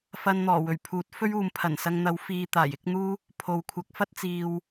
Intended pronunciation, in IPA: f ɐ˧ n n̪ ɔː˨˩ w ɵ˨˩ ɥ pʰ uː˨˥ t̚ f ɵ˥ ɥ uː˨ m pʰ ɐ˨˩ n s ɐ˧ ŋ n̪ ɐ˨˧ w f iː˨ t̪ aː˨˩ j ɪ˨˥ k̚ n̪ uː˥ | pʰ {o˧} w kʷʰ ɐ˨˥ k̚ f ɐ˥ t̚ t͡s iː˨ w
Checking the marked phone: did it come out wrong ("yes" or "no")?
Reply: yes